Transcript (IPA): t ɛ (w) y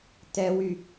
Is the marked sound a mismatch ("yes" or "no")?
no